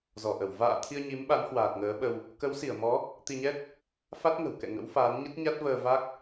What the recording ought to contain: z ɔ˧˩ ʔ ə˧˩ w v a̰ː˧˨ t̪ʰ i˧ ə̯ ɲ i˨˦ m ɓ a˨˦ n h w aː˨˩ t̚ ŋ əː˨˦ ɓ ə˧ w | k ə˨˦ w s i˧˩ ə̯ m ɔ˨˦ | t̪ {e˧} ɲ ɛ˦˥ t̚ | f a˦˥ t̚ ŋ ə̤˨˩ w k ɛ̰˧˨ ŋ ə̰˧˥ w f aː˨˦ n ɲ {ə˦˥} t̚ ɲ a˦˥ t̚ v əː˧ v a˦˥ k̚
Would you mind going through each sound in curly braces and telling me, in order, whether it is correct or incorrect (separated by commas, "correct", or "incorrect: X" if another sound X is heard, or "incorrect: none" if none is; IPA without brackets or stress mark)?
incorrect: i˧, correct